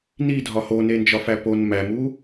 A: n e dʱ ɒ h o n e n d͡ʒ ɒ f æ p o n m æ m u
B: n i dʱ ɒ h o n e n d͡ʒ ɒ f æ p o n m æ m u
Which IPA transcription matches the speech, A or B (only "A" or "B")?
B